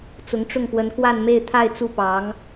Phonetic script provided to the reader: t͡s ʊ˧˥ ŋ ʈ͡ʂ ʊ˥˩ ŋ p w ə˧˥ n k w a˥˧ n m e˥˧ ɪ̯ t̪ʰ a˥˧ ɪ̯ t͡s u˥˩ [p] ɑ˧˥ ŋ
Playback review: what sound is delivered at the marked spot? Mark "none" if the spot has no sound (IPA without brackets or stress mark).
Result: p